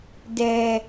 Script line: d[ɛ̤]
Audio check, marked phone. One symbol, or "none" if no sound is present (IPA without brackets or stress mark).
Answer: ɛ